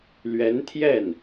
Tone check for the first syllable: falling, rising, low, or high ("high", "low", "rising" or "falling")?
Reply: rising